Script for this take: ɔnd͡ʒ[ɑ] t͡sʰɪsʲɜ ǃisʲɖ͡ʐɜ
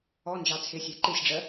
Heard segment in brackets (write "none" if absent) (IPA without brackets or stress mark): ɑ